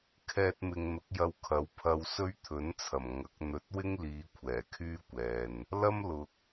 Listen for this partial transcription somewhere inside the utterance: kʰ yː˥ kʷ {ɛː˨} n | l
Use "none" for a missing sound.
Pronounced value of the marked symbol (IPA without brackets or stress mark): ɛː˨